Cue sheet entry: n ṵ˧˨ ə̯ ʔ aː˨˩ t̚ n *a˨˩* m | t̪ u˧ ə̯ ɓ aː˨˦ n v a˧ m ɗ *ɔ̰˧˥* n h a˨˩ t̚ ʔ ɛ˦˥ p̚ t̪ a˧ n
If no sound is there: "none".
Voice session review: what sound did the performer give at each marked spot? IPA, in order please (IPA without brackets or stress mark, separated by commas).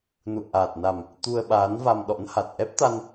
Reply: a˨˩, ɔ̰˧˥